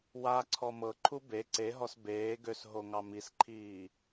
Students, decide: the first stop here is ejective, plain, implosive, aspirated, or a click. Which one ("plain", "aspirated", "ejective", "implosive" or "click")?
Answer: click